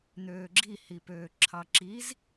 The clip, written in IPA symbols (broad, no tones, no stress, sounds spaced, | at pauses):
n̪ øː ɡ͡ǁ i h i p øː ǁʰ ɑ ǁ i z